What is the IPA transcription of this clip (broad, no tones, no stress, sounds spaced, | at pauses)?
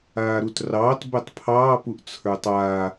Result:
aː ɾ u t r ɑː t b ɛ tˤ pʰ ɑː p u ʔ t͡sʰ ə˞ tˤ a